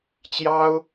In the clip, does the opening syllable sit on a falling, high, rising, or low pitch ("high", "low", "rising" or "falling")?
high